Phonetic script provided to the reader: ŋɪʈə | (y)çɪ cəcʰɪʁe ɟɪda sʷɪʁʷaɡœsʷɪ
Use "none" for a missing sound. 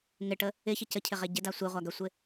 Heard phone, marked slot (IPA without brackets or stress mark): ɪ